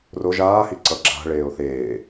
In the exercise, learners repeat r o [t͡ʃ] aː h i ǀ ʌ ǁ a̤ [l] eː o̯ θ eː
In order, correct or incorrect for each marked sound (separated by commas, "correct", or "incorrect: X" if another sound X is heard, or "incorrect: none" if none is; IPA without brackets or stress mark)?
incorrect: ʒ, incorrect: ɭ